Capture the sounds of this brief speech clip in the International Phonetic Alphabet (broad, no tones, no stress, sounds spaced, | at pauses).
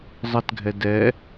zˤ ə t ɡʱ ɛ d ɛ